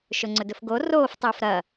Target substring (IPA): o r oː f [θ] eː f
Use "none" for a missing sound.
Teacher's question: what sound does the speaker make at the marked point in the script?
tˤ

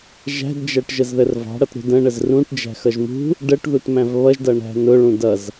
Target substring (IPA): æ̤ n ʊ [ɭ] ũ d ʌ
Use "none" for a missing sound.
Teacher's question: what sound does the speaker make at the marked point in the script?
ɭ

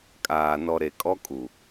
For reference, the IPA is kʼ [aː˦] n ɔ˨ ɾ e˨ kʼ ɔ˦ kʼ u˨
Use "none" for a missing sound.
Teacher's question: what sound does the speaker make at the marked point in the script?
aː˨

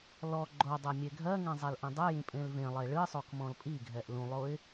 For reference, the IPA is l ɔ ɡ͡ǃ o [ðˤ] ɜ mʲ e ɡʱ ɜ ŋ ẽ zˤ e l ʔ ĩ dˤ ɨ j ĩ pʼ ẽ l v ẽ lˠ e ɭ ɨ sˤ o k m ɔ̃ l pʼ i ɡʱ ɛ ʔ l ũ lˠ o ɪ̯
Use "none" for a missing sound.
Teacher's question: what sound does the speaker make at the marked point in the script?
dˤ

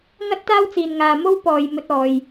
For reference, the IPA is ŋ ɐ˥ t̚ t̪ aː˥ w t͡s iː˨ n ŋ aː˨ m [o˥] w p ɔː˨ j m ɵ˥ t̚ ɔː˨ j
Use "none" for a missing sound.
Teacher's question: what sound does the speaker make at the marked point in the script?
o˥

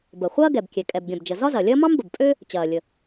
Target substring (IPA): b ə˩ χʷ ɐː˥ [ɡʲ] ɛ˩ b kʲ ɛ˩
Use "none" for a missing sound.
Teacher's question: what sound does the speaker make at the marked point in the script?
ɡ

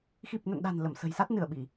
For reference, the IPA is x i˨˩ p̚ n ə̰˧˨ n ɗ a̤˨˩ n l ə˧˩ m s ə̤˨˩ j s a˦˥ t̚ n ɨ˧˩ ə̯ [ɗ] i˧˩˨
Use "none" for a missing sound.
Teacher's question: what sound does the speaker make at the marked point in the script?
ɓ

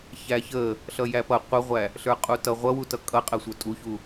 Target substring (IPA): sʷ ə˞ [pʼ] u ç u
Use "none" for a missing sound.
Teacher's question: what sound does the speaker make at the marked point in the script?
tʼ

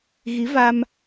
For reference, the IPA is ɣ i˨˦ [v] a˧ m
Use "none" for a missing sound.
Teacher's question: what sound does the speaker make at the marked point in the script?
v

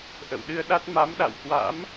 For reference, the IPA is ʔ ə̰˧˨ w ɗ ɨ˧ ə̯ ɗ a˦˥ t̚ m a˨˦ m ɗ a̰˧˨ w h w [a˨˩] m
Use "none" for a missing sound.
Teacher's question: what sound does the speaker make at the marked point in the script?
a̰˧˥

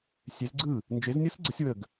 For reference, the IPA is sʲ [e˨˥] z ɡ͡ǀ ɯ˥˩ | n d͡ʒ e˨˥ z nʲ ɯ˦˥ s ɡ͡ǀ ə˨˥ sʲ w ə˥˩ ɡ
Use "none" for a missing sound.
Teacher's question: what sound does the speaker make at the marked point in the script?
e˨˥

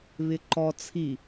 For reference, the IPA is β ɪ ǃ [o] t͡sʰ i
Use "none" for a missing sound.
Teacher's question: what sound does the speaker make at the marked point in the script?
ɔ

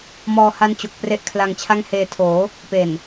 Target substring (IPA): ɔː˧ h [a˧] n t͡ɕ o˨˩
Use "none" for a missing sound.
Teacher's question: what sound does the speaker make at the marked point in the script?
a˦˥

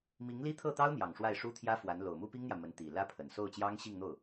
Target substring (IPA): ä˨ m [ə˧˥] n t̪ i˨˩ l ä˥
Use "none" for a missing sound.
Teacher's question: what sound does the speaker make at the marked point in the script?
ə˧˥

